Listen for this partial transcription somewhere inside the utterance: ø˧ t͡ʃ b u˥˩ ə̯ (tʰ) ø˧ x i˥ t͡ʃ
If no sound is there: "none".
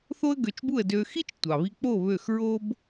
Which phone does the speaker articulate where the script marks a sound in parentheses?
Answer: d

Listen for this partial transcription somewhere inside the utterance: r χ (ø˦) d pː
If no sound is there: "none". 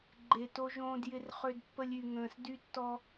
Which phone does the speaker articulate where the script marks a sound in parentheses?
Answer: ø˦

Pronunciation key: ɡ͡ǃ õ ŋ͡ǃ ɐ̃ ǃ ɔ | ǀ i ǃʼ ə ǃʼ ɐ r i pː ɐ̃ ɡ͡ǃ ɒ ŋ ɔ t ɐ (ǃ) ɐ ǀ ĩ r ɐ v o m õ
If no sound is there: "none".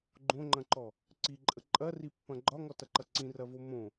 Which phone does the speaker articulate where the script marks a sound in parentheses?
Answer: ǃ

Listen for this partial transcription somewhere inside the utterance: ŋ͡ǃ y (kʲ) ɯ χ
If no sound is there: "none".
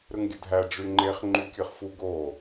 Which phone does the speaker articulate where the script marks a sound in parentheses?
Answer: kʲ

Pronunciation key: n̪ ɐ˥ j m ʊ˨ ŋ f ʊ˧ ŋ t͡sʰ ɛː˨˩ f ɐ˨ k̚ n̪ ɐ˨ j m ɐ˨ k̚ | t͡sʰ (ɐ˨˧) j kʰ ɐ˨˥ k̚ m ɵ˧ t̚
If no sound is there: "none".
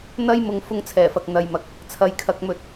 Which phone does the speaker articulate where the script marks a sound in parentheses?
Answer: ɐ˨˧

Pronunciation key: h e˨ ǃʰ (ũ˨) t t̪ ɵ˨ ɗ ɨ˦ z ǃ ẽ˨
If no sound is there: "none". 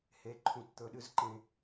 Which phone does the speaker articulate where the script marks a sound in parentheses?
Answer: ũ˨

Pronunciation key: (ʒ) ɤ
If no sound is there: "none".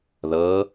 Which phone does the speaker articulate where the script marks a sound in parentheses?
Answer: ð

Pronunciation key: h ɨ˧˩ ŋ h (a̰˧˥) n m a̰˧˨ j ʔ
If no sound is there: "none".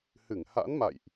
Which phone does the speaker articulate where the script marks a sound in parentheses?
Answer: a̰˧˥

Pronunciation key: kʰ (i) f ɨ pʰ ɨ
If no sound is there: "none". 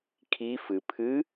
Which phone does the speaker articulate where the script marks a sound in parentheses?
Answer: i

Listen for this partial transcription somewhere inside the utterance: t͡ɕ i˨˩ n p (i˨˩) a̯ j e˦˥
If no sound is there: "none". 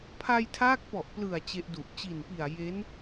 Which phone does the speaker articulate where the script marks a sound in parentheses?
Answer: i˨˩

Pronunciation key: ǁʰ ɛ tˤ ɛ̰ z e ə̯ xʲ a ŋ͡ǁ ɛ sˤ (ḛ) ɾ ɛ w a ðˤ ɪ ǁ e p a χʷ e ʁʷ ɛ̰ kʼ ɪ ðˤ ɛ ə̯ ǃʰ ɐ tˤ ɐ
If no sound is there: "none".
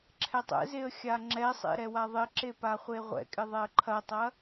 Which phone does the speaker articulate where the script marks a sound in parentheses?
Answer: ḛ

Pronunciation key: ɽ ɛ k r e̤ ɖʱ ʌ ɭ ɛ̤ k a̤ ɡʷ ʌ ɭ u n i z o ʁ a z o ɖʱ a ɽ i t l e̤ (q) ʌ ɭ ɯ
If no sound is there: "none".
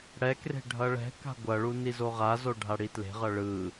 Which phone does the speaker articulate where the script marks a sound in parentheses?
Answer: ʁ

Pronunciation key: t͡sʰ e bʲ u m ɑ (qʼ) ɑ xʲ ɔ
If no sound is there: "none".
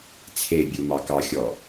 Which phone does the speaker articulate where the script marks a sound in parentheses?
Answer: k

